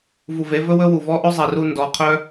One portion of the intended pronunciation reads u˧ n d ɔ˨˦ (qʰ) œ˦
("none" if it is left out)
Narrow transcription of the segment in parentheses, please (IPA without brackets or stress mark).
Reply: qʰ